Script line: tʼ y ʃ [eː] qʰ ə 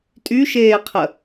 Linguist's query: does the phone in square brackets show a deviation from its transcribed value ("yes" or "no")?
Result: no